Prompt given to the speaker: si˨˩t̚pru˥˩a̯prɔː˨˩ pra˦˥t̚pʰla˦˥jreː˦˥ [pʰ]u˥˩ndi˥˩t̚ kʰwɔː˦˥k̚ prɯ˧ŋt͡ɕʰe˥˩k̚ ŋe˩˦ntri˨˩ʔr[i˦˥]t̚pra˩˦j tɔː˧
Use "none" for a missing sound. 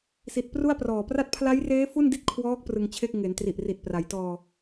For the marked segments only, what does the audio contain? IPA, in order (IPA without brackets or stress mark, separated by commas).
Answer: f, i˨˩